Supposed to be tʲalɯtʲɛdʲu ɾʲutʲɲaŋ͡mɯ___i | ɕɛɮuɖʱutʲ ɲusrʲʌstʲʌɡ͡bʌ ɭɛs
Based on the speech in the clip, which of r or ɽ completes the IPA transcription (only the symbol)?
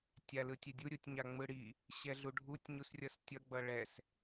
ɽ